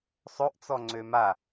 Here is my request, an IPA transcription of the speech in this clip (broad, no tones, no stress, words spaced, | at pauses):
sˤoʔt͡sɔ ŋ͡ǀøma